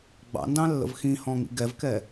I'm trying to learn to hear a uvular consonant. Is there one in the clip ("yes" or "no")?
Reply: no